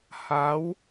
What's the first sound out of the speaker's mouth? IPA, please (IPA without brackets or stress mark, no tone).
h